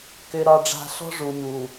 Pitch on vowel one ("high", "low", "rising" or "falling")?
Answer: low